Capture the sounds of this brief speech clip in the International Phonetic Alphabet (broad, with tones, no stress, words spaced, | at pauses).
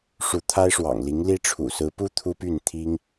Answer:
ʂu˧˥t̪ʰa˥ɪ̯ʂwɑ̰˨˩ŋ li˧˥ŋli˥ʈ͡ʂʰṵ˨˩ sɹ̩˧˥pu˥ t̪ʰu˥py˥˩n t̪ʰi˥ŋ